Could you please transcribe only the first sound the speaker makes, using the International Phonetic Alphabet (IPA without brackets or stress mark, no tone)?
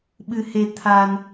ɓ